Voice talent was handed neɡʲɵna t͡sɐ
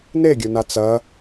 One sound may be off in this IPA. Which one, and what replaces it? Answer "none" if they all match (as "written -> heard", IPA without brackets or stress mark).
none